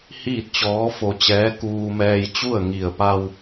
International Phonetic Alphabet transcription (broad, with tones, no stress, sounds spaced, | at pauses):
h iː˥˨ t̚ t͡ɕ ɔː˧˥ f o˧ t͡ɕ ɛː˧˥ k uː˧ m ɛː˧ j t͡ɕ u˥˨ ə̯ ŋ i˧˩ ə̯ p a˧ w